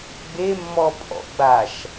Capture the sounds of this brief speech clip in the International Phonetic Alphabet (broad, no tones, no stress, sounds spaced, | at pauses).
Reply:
ɡ͡b e mː ɔ pʼ ɔ̰ ɡ͡b a ʃ